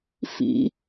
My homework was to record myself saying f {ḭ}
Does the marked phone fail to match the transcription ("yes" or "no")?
no